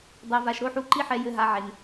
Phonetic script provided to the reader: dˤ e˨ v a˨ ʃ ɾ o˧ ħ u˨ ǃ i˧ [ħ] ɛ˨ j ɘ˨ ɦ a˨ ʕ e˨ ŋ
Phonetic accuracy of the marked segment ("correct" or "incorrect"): correct